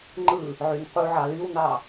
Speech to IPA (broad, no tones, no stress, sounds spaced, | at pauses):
ŋ͡ǃ ɯ | ʕ y n q u ʕ ɑ l y w n ɑ